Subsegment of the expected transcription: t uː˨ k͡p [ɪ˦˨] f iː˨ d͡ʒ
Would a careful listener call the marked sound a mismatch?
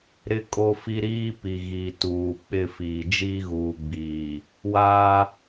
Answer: no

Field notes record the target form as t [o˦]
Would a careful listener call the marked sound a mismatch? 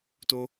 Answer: no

